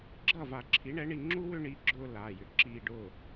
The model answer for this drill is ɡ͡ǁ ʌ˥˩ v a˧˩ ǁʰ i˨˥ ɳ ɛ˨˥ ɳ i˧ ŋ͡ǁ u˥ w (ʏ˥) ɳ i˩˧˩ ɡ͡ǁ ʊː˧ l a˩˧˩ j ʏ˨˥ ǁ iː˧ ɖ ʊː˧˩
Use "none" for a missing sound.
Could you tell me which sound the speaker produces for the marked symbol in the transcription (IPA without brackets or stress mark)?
ʏ˥